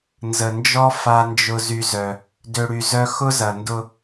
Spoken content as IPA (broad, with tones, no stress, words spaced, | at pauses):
nzə˨nd͡ʒɔ˦ fa˦nd͡ʒʊ˦ zy˦zœ˦ | dø˨ɽy˨ zœ˦ xʊ˦zɐ˨ndʊ˦